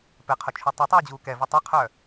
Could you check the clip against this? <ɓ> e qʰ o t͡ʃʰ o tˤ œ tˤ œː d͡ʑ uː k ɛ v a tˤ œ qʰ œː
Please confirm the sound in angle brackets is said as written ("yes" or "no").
no